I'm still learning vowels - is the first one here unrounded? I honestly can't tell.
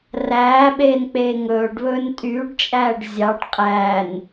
yes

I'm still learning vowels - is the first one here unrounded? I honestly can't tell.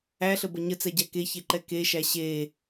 yes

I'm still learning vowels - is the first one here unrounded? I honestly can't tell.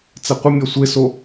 yes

